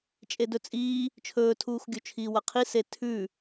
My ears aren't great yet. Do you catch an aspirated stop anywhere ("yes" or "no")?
yes